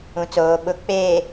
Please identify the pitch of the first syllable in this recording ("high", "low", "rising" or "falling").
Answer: low